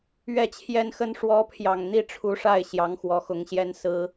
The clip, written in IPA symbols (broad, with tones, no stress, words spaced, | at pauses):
ɥɛ˥˩t͡ɕʰjɛ˥nxə˥n ʂwɔ˧˥pʰjɑ˨˩ŋ n̪i˥˩ʈ͡ʂʰu˧˥ʂa˥˩ɪ̯ ɕjɑ˧˥ŋxwɔ˨˩xʊ˧˥ŋɕjɛ˥n sɹ̩˥